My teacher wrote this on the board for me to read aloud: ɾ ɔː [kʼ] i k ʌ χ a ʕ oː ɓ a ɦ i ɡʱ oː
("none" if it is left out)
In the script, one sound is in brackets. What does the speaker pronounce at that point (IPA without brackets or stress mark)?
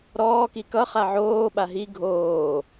k